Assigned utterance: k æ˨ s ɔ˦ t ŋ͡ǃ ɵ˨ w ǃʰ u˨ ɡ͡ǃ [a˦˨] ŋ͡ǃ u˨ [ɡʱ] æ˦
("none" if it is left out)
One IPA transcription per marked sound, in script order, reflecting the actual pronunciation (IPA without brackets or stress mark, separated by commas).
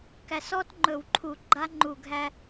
a˦, ɡʱ